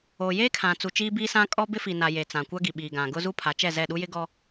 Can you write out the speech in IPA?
oː˨ j eː˦ kʰ ã˨ t͡s u˨ t͡ʃ iː˦ b iː˦ s ã˦ kʼ ɔ˦ b ɪ˦ f i˨ n a˨ j e˨ t͡s ã˨ kʷ a˦ ɡ i˨ ɓ iː˨ ɡ ã˨ ɡ ʊ˦ z u˦ pʰ a˨˦ t͡ʃ ɛ˦˨ z ɛ˦˨ ɗ u˦ j ɪ˦ ɡ ɔ˦

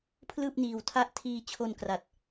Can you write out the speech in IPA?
pʰ l ɯː˥˩ p̚ n iː˧ w tʰ a˥˩ ʔ tʰ iː˧ t͡ɕʰ o˧ n k r a˨˩ t̚

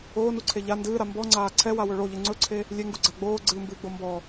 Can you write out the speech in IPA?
oː n u ǀʰ e ʎ a n d ɨː ɾ a m b ɔ ŋ͡ǀ aː ǀʰ ɛ w a w ɵ ɭ o ʎ ɨ ŋ͡ǀ ɵ ǀʰ e | lʲ e ŋ ɡ u ɡ͡ǀ a ɡ͡b oː ɡ͡ǀ ɨː m b ɨː ɡ͡b o m b ɔ

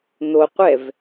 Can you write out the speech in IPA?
n̪ o qʷ ɛ v

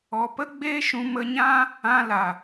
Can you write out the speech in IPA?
ɔ˨ p ə˦ ɡ͡b eː˦ ʃ ũ˧ m ə˧ ɲ ã˦ | ã˧ l a˨

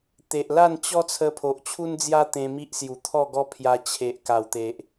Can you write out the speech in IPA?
t̪ e˨ ʔ l a˥˧ n t͡ɕ ɔ˦ t͡sʰ ə˧ pʰ o˨ ʔ t͡ɕʰ u˦ n d͡z j a˦ t̪ ẽ˧ m i˦ ʔ s j u˨˩ t̪ʰ ɔ˥˧ ɡ ɔ˦ pʰ j a˧ t͡ɕʰ e˨ ʔ k a˨˩ w t̪ e˨ ʔ

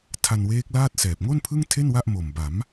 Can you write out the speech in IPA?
tʰ a˧ n w eː˦˥ k̚ l aː˥˩ t̚ s ɛː˨˩ p̚ ŋ o˥˩ n pʰ ɯ˥˩ ŋ tʰ e˥˩ n w a˥˩ ʔ m o˨˩ m b a˩˦ m

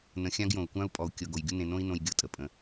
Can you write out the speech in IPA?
n ə̃˨ xʲ ã˦ ɡ j õ˩ u̯ kʷ ã˥ u̯ pʼ ɔ˨ u̯ kʲ ɤ˨ ɡ o˩ j ɡʲ u˥ n ẽ˨ n õ˥ i̯ n õ˨ j ɡʲ ɤ˦ tʼ ə˩ pʼ ə̃˩

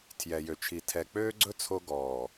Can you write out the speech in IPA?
tʰ j ɛ˨ j ø˨ t͡ʃʰ i˨ tʰ ɛ˨ k͡p øː˦ ɡ͡ǀ ɵ˦ t͡sʰ o˦ ɡ ɔː˨

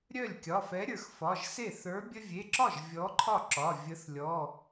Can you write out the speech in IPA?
ɾʲ œ˥˩ lʲ kʲ ɒ˩˧˩ f ɛ˨˥ ɾʲ ə˞˩ x f ɒ˩˧˩ ʒ s e˥˩ θ ə˞˨˥ bʲ ə˦ vʲ e˩˧˩ ǁ ɒ˥˩ ʒ vʲ ɔ˨˥ ǃʰ ɒ˥˩ ǁ ɒ˩˧˩ vʲ ə˨˥ θ lʲ ɔ˩˧˩

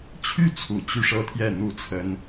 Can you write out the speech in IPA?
t͡ɕʰ y˥˩ t͡sʰ u˨˩ t͡ɕ y˥˧ ʂ ɤ˥˧ t̪ʰ j ɛ˥˧ n̪ u˥˩ t͡sʰ ə˥ n

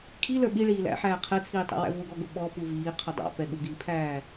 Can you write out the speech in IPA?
kʰ i l ə˞ ɓ i ɭ iː l æ̰ ħ æː qʰ ɛ t͡sʰ iː tˤ æ̰ w æ̰ v ʊ ɡ ɔ ɡ ʊ ɓ ɔ p u v iː qʰ ʊ dˤ ɑ̰ p ɛ ɠ u ɡ iː pʰ æː

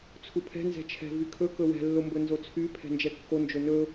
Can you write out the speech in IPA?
t͡sʰ u pʰ ɛ̤ n z ɛ̤ t͡ʃʰ ɛ̤ v y kʰ ɵ k ɵ w ɛ̤ lː o m b ɵ n z o t͡sʰ y pʰ ɛ̤ n d͡ʒ ɛ kː o n d͡ʒ ɵ n ɵ

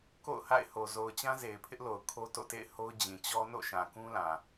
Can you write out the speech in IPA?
k o̰˦˨ ʊ̯ h a̰˦˨ ɪ̯ h o˨ z o˨ ʊ̯ t͡ɕ ã˦ z e˨ ɪ̯ pʰ ɪ˦ ʔ l o˨ ʊ̯ kʰ o˦ t o̰˦˨ t ḛ˦˨ ɪ̯ h o˦ ʊ̯ d͡ʑ ĩ˨ t͡ɕ ɔ˦ n o̰˦˨ ʃ ã˨ k ũ˦ l ã˨

